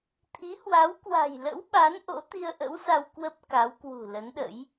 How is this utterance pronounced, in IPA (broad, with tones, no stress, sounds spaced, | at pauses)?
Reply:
t̪ʰ i˨˦ h w a˨˦ w k w a̤˨˩ j l ə̰˧˥ w ɓ a˨˦ n ʔ o̰˧˥ t̪ i˧ ə̯ ʔ ə̰˧˥ w s a˧ w k w ə˦˥ p̚ k a˨˦ w k w ṳ˨˩ l ə˨˦ n ɗ ə̰˧˥ j